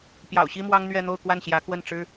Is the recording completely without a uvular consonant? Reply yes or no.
yes